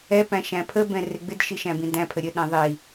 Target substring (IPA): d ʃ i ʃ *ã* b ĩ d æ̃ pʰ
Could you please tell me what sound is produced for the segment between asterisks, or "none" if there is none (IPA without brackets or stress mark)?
æ̃